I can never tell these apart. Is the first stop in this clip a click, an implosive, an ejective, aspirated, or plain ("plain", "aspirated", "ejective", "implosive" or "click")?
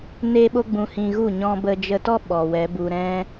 implosive